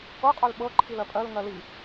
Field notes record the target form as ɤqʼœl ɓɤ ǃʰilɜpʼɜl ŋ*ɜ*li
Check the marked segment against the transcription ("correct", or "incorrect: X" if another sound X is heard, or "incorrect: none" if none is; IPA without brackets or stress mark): correct